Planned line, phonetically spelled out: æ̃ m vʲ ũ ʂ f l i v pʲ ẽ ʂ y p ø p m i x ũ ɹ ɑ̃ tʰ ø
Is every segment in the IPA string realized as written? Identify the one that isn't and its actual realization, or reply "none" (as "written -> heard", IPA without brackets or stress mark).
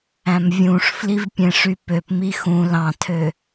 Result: ɹ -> l